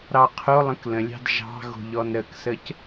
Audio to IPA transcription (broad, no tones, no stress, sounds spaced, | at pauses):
ɾ ɑ qʰ o lˠ ə̃ k l ə̃ lʲ ɑ̤ d ʒ ɑ̤ ɣ o̤ ʎ ɔ n ɾ ə k s ə c